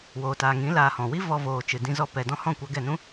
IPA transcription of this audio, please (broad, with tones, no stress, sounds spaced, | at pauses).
w oː˨ t aː˨ ŋ ĩ˨˦ l aː˧ h ɔ̃˨ w i˦ v ɔ˧ v oː˨ t͡ʃ ɨ˨ d ĩ˧ z ɔ˧ p ɛ˨ d ɔ̃˦ h ɔ̃˦˨ kʷ a˧ ɡ ɛ˦˨ n ũ˦